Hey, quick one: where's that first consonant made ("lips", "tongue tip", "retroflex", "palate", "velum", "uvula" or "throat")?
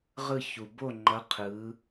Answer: uvula